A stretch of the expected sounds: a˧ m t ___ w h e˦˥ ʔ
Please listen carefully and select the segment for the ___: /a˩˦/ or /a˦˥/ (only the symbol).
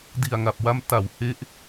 a˩˦